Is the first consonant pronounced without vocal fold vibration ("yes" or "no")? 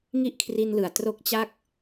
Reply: no